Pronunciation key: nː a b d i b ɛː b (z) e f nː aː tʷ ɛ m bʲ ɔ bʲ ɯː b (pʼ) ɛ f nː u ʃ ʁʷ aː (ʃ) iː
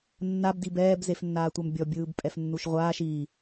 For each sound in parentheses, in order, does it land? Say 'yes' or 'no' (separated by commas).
yes, yes, yes